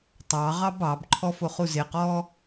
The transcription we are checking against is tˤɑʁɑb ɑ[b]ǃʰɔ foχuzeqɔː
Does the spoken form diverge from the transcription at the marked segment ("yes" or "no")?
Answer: no